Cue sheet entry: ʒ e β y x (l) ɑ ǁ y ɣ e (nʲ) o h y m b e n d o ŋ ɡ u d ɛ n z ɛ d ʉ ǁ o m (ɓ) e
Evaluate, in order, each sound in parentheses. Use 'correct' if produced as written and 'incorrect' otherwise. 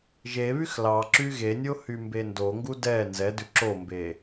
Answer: correct, correct, incorrect: b

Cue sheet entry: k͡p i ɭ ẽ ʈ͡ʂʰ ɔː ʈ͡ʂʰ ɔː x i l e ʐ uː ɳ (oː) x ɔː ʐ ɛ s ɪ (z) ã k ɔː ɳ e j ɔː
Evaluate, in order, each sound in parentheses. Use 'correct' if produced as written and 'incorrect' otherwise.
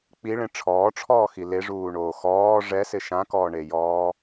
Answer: correct, incorrect: ʃ

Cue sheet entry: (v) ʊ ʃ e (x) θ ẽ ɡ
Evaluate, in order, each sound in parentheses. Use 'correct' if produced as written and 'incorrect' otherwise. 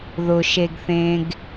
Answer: incorrect: ð, incorrect: ɡ

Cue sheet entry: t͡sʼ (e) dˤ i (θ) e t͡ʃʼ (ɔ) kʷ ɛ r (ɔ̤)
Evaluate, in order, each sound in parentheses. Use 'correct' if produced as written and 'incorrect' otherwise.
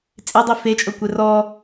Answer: correct, incorrect: f, incorrect: ɤ, incorrect: ɔ

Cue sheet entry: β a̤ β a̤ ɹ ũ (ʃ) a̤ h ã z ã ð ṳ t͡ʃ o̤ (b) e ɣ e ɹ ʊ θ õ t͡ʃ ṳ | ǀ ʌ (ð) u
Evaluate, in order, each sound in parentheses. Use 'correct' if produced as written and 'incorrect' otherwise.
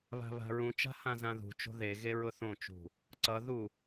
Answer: incorrect: t͡ʃ, incorrect: ð, correct

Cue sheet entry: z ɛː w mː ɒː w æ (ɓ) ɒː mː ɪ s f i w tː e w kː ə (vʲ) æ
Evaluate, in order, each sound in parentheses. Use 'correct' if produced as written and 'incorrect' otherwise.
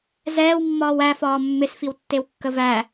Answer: incorrect: f, incorrect: v

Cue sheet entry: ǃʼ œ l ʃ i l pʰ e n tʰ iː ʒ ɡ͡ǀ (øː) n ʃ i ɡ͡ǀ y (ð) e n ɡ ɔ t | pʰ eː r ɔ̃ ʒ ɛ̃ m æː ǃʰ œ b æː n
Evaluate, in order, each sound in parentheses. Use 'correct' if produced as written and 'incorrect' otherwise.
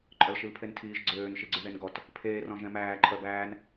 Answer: correct, correct

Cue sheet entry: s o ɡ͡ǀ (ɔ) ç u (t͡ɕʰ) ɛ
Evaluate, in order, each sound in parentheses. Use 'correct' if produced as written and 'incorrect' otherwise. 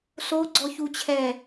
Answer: correct, correct

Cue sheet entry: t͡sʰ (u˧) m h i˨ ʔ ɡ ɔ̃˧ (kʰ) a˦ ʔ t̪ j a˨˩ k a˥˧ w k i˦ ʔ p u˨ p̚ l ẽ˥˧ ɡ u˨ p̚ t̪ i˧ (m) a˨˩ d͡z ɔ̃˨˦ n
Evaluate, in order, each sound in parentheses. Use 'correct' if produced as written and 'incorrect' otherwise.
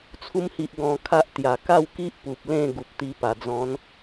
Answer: correct, correct, incorrect: p

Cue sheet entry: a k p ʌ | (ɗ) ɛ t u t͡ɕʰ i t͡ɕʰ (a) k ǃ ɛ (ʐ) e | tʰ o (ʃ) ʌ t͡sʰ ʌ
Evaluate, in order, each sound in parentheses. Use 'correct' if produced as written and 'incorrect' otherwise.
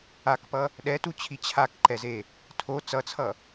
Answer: correct, correct, incorrect: z, incorrect: t͡s

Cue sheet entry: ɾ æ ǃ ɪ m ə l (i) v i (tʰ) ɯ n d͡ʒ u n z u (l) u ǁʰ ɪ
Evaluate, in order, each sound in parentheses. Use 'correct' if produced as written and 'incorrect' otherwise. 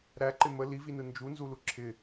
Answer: correct, incorrect: n, correct

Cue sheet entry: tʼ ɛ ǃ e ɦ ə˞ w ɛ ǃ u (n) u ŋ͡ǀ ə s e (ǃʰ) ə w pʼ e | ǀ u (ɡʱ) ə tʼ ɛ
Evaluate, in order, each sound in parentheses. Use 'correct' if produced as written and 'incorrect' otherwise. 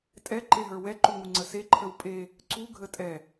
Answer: incorrect: ŋ, correct, correct

